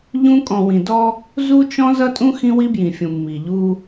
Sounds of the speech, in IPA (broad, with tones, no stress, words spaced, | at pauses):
ʎũ˦ kʼɔ̃˨wĩ˨dɔ˦ | zu˦t͡ʃɔ̃˦ zʌ˦tʼũ˦ xĩ˦wi˦bjĩ˨fʲũ˨ mːi˨ʎu˦